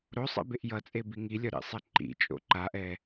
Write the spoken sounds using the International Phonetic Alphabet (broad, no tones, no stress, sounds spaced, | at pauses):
ɾ o sˤ ḛ b e ʔ j ʌ t͡sʼ e b i ŋ i lʲ ɒ ɾ ḭ sˤ e ǃ ḭ t͡ʃʼ o̰ ǃ a ʔ ɛ